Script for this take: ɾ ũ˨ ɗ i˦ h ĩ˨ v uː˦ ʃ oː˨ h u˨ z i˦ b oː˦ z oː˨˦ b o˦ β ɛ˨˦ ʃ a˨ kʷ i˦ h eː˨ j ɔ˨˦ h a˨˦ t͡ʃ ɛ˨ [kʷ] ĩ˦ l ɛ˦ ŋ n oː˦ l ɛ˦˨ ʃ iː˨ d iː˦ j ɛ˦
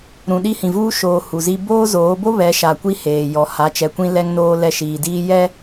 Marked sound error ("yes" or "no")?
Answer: no